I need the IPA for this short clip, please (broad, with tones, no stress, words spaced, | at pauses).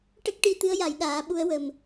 ʈə˦˥k̚ ʈi˧t̪ɨ˧˥ə̯ ja˨˩˦jɗaː˨˩˦ ɓu˧˥ə̯wə˨˩m